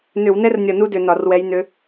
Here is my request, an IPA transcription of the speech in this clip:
n ʏ˧˩˧ w n ɛ˥ r nʲ ʌ˧˩ n u˥ d ʏ˧˩˧ n ɒ˧˩˧ r w ɛ˧˥ j n ʏ˧˥

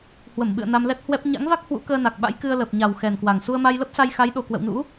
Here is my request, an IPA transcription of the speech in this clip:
h w ə˧˩ m ɓ ɨ̰˧˨ ə̯ n a˧ m l ɛ˦˥ t̚ h w ɛ˦˥ p̚ ɲ a̰˧˥ ŋ v a˦˥ k̚ h w ṵ˧˥ k əː˧ n a˨˩ k̚ ɓ a̰˧˥ j k ɨ˧ ə̯ l əː˨˩ p̚ ɲ a˨˩ w x ɛ˨˩ n k w a˨˩ ŋ s u˧ ə̯ m a˧ j l ə˦˥ p̚ s a˧ j x a˨˦ j ɗ o˨˩ k w ə̰˧˨ w n ṵ˧˥

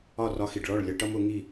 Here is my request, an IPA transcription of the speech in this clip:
ɒ˦˨ r ɒ˧ x i˨ ɖ ɭ ɔ˦˨ ɭ lʲ ʌ˧ ʈ ʌ˦ m ʊ˨˦ ŋ i˦˨

